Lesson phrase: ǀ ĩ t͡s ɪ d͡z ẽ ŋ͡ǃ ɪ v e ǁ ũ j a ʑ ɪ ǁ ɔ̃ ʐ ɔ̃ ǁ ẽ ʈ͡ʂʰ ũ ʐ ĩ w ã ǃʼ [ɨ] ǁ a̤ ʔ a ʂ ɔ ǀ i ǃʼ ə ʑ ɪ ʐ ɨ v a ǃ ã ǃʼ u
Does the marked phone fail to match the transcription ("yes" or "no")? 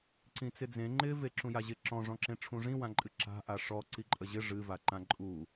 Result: no